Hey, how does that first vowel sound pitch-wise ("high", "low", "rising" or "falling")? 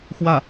falling